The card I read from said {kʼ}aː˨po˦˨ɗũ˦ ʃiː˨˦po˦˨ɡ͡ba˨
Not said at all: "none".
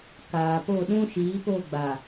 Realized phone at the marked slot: k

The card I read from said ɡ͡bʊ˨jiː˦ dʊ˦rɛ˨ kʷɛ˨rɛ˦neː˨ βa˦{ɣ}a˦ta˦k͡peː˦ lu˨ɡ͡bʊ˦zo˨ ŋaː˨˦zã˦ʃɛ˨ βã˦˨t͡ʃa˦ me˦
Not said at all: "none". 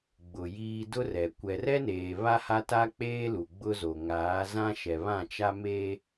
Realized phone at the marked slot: h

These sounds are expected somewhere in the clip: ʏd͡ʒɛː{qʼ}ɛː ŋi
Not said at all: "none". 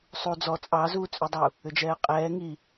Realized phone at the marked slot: qʼ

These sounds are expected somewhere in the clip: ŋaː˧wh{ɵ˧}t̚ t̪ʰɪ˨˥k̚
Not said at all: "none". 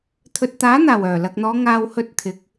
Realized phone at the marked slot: ɵ˧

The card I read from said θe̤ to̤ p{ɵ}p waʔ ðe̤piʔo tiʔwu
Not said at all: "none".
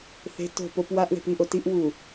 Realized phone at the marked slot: o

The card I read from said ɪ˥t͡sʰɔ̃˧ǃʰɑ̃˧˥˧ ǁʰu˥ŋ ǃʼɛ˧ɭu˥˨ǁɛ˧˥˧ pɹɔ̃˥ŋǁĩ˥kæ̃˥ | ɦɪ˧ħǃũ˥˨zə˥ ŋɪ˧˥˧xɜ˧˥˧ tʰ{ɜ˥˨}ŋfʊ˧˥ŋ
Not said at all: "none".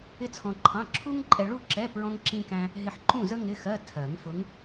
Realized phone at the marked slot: ɜ˨˩˦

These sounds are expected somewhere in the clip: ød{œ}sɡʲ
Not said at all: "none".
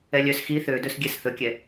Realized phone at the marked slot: ɵ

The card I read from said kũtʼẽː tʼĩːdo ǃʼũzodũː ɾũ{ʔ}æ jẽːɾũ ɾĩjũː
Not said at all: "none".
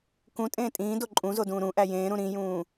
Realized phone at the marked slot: ʔ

